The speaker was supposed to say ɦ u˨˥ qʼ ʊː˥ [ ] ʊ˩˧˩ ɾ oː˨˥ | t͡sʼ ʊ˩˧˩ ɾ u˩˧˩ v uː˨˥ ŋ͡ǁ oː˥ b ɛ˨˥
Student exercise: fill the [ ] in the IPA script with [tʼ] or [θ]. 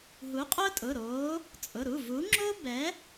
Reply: tʼ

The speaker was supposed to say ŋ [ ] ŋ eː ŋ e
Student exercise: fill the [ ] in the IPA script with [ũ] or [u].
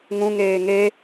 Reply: ũ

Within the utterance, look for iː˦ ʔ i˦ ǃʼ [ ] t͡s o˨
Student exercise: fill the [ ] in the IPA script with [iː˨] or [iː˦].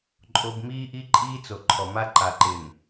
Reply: iː˦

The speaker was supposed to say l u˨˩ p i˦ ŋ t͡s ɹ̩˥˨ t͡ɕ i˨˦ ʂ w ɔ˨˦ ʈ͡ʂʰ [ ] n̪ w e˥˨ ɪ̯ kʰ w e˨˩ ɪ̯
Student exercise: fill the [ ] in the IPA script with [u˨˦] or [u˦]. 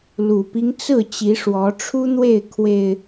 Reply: u˦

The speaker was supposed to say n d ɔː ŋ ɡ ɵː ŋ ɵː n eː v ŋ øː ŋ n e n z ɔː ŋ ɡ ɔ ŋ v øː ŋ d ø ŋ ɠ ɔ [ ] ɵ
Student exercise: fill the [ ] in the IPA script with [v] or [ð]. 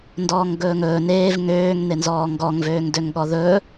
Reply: ð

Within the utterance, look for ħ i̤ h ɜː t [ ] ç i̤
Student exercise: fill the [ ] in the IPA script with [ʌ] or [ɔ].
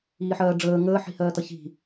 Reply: ʌ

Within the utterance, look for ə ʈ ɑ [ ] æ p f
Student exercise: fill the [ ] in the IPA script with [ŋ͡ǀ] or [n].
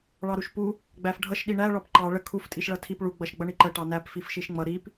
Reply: n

